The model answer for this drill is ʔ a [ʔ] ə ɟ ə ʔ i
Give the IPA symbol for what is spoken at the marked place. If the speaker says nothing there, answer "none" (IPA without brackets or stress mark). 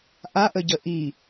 ʔ